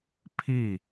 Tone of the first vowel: falling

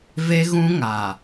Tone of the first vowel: high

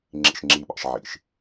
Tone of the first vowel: low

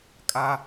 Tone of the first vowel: high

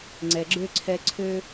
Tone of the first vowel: low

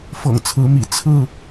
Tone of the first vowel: low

